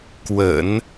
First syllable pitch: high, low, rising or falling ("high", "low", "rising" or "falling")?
low